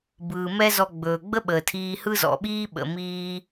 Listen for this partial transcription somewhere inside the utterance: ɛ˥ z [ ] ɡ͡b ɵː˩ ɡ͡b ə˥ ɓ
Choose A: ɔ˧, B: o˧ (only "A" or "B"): A